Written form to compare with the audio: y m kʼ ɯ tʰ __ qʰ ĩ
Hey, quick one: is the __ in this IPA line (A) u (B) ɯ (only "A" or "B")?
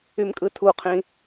A